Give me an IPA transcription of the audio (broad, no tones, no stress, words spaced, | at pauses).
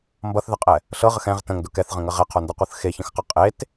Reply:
mbʌθðəqʼɛ | ɬɤʁəx ɛ̃ʁ tə̃ŋdʊ kɛθʁə̃ŋə ʁɛqʰondʌqʷɤθ xeçə̃xqʌ qʼet